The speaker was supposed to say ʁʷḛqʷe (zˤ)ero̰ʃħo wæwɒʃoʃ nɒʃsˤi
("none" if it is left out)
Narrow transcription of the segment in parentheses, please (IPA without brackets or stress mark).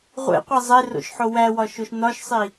zˤ